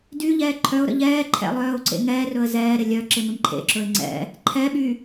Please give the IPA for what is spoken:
d y ʎ ɛː ǃʰ œ ʊ̯ ɾ ə̰ ʎ ɛː ǃʰ ɛ̰ lˠ œː ʊ̯ ǀ ḛ ŋ ɛː r ɵ ə̯ z ɛː ɾ ɪ lʲ œ ǁ ɪ m ɪ m ǃʰ ḛ ǁ ɵ ɪ̯ ŋ͡ǀ ɛ̰ | ǃʰ ɛ ɓ y

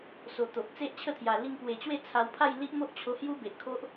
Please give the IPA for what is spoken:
s o˨˩ t̪ o˨ ʔ t͡s e˦ ʔ t͡ɕʰ ə˥˧ t̪ʰ j a˨˩ l i˧ ŋ p w e˨˩ t͡ɕ w e˥˧ t͡sʰ a˧ w pʰ a˥˧ j l i˦ ʔ m o˦ ʔ t͡ɕʰ o˧ h j u˦ b e˨ ʔ kʰ o˦ ʔ

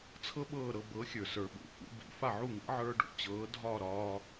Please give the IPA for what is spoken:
t͡sʰ ɤ˥ ɓ ɤː˥˩ ɾ ɤ˧ b ɤː˩˥ xʲ ə˞˩ s ə˞˩ ɓ ṵ˩ f ṵ˧ b ḭ˩˥ f a˥˩ ʕ u˥˩ ŋ ḭ˩˥ ʕ ə˞˧ ɖ ṵ˩˥ t͡ɕ ɤː˩˥ dʱ ɒː˥˩ ɾ ɒː˧

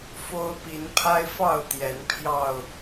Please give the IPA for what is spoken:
f o˦ ʊ̯ p i˨˦ n pʰ a˦ ɪ̯ f ɑ˥˨ ʊ̯ t̪ j ɛ˨˦ n pʰ j ɑ˥˨ ʊ̯

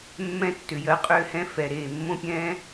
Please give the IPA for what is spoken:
mː ɛ̃˧ tː ʏ˨ j ɜ˧ qʼ ʏː˧ h ɛ̃˧ f ɛ˨ ɾ eː˨ mː õ˧ pʲ ɛ̃ː˧

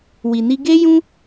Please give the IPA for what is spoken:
w i˨ n i˧ ɡ e˦ j ũ˦

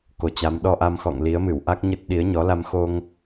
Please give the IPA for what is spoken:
k o˨˦ t͡ɕ a˨˦ m ɗ ɔ˧ ʔ a˧ m x ɔ̰˧˨ ŋ l i˨˦ ə̯ m ɨ˧˩ w ʔ a˦˥ k̚ ɲ ə˦˥ t̚ ɗ i˨˦ ə̯ ɲ ɔ˨˦ l a˧ m x o˧ ŋ

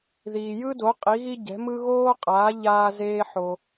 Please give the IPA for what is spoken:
ð iː˩ j ɯ˥ d o˩˥ qʼ i˩˥ ɣ i˥ ɟ ɛ̤˩˥ m ɯ˥ ɣ oː˥ qʼ aː˩˥ ʎ aː˧ z eː˧ ħ o˩

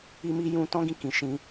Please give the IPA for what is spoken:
i˦ m i˦ j ũ˦ t ɔ̃˦ ɡ ĩ˧ k ĩ˨ ʃ ĩ˧

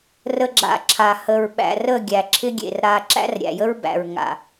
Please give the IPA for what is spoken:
r ə˨ ɡ͡ǁ a̰˨ ǁʰ a˨ h ə˨ ɹ ɓ æ̰˨ r ə˦˨ ɡʲ æ˨ ǁʰ ɪ˦ ɡʲ ḛ˨ r ɾ a˨ ǁ æ̰˦ r ɾʲ æ̰˨ j ə˦ ɹ b æ̰˨ ɹ ŋ a̰˨

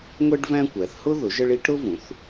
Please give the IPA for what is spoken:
ŋʷ ɛ˥ ɖ v æ̃˥ kʷ æ˩˥ θ h ʊ˥ ð ʊ˩˥ ʒ ə˥ ɭ i˥ ʈ ɾ ʊ˥ v ũ˩˥ θ

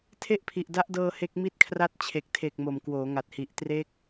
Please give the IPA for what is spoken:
tʰ e˥˩ ʔ pʰ i˨˩ ʔ d a˦˥ ʔ d ɤː˧ h e˦˥ k̚ m i˥˩ t̚ kʰ r a˥˩ t̚ t͡ɕʰ e˨˩ k̚ tʰ e˨˩ k̚ m o˨˩ m k w oː˩˦ ŋ a˨˩ t̚ h i˨˩ ʔ t r e˦˥ k̚

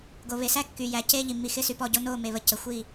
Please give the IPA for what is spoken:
ɡ o˨ β e˨ s æ˦ kː y˨ j æ˨ c e˦ ʎ i˨ m i˨ x ɪ˦ s y˨ p ɔ˦˨ ɟ o˦ n o˦˨ m e˨ β ə˨ c ə˨ xʷ i˦˨

